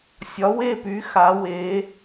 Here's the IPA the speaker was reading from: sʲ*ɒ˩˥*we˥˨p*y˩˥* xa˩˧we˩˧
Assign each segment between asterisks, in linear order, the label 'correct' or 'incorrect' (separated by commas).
correct, correct